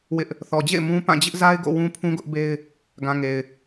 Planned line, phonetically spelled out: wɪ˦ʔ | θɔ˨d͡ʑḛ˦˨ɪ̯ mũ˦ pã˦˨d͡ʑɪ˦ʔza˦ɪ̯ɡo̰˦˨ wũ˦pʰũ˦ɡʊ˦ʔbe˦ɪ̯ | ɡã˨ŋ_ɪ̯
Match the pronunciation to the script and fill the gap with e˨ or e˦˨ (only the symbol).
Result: e˨